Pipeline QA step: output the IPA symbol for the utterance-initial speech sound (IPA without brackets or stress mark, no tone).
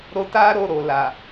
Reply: ɾ